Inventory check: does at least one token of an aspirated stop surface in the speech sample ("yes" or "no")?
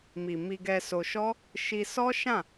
no